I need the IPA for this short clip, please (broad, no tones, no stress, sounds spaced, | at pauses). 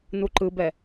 n u ǃ ɯ b ɛ